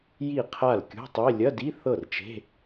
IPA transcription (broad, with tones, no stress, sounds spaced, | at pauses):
j i˥˩ qʰ a˥˩ l kʲ ṳ˧˥˧ tˤ e˧˥˧ lʲ ɐ˧˥˧ d i˧˥˧ θ ɤ˥˩ r t͡ʃ e̤˧˥˧